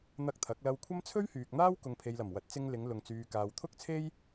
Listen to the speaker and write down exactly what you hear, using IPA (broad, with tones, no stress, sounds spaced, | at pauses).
n̪ ɐ˧ k̚ t̪ʰ ɐ˨˥ k̚ l ɐ˧ w kʷʰ ɐ˥ m t͡sʰ ɵ˥ ɥ h yː˨ k̚ n̪ aː˥ w k ʊ˨ ŋ pʰ e˨ j l ɐ˨˩ m w ɐ˨˥ t̚ t͡s ɪ˧ ŋ l ɪ˨˧ ŋ l ʊ˨ ŋ t͡s yː˨ k aː˨ w t̪ʰ ʊ˥ k̚ t͡sʰ e˥ j